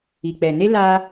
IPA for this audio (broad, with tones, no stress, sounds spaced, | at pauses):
i˨ k͡p ɛ˨ n e˦ l aː˧